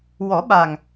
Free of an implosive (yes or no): no